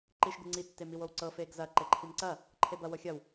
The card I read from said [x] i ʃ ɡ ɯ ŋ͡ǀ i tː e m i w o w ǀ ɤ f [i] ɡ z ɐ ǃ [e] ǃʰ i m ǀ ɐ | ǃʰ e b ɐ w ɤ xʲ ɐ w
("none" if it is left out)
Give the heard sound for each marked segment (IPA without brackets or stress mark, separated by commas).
ǃ, e, e